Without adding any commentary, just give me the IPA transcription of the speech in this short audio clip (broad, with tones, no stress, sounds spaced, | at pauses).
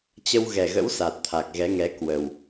t͡ɕ ə˧ w ɣ ɛ˨˩ ɣ ə̰˧˥ w s a˨˩ t̚ t̪ʰ a˨˩ k̚ ɣ ɛ˨˦ ŋ ɛ˨˦ k w ə˨˩ w